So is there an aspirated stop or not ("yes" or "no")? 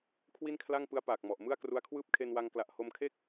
yes